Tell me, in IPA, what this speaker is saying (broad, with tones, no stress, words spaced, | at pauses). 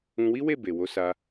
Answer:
ũ˧wi˦ we˦˨be˨wo˧sa˧